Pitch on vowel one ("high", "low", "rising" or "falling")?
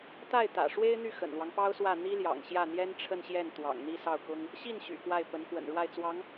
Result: falling